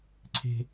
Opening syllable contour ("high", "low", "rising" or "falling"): high